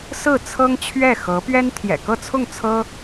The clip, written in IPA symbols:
s ɹ̩˥˩ t͡sʰ ɤ˥ ŋ t͡ɕʰ ɥ ɛ˥˩ x ɤ˧˥ p ɥ ɛ˥ n t̪ʰ j ɛ̰˨˩ k ɤ˥˧ t͡sʰ ʊ˥˩ ŋ t͡sʰ ɤ˥

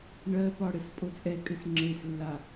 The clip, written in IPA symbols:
ɳ ɜ p ɒ ɽ ɘ s pʼ o t͡sʼ ɛ kʼ ɘ s ŋ͡ǁ e s lː a

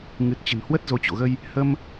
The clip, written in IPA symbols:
ŋ ɨ˨˩ t̚ t͡ɕ ə̤˨˩ n h w ə˦˥ t̚ z o˨˦ t͡ɕ o̰˧˨ ɣ ə˧ j | h ə˧ m

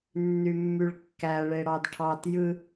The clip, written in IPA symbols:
nː y mː y ɭ kː æ ɭ e ɽ ɑ d ʈʰ ɑ t j ɯ

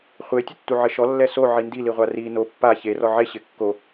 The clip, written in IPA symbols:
χʷ e tʲ ʊ tː u ʕ ɪ ʃ ɔ lː ɛ s o ʕ i n d i l i ʁʷ a r i n o pː a ç e r ɔ ʕ e ɕ ɪ kː o

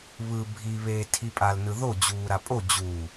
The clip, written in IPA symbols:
β ɯ bʱ i β eː tʰ i pʼ a l n ɯ ð o d͡ʑ uː ɾ a pʼ o d͡ʑ u

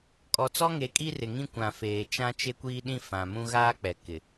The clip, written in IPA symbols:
kʼ ɔ˨ t͡s ɔ˦ ŋ e˨˦ kʼ i˦ r ɪ˨ ŋ ĩ˦ kʷ ã˨ f eː˨ t͡ʃ ã˦ t͡ʃ e˦ kʷ iː˦ ɗ ĩ˦ f ã˨ m ũ˦ ɣ aː˦ k͡p ɛ˨ k ɪ˨

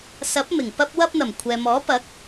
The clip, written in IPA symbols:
s ɐ˨˥ p̚ m ɪ˨˩ ŋ p ɐ˧ p̚ w ɐ˧ p̚ n̪ ɐ˨˩ m kʷʰ ɛː˨ m ɔː˨˥ p ɐ˨˥ k̚

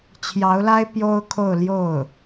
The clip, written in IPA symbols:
t͡ɕʰ j ɑ˧˥ ʊ̯ l a˥ ɪ̯ p j o˥ ʊ̯ kʰ o˥˧ ʊ̯ l j o˥˩ ʊ̯

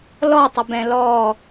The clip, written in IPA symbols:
l ɔ tˤ ʏ b ɛ̃ l ɔ

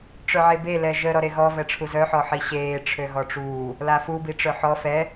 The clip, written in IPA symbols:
ʈ͡ʂ œ ʕ e b e l ɛ ʒ ə ɾ ɔ ɾ e ɣ ɔ v ɛ ʈ͡ʂʰ u z œ ħ ɔ ħ i ɕ eː ʈ͡ʂʰ ø ɣ ɔ ʈ͡ʂ uː | l a f u b i ʈ͡ʂ œ ħ ɔ f ɛ

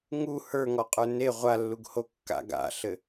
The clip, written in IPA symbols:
ŋ u h ə˞ ŋ ɔ qʼ ə˞ n e ʁʷ a lː u ɡ h o kː a̰ ɡ a̰ ɬ ɘ

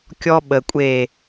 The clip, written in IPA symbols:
kʲ ɔ˦ ɓ ə˨ kʷʼ e˦˨

